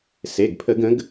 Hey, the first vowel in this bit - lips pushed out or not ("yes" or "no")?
no